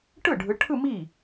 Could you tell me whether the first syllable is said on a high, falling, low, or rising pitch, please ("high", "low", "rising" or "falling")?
falling